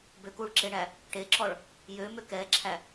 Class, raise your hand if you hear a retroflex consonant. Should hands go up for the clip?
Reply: yes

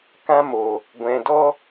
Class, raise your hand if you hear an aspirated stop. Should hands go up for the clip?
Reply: no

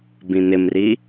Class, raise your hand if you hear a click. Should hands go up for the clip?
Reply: no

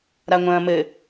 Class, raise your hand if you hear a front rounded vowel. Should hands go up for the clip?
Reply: no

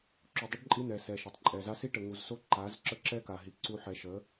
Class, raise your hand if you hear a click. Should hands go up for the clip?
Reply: yes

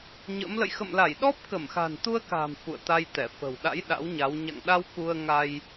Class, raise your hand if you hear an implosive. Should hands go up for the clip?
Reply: yes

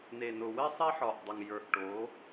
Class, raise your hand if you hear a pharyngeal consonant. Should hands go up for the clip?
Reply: yes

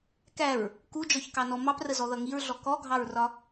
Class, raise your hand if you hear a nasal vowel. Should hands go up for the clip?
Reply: no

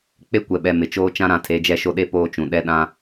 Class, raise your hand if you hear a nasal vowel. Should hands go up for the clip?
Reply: yes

